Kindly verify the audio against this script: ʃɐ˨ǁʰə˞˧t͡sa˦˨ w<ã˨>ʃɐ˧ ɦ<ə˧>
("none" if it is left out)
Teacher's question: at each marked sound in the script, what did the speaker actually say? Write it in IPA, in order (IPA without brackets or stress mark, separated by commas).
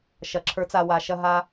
a˨, a˧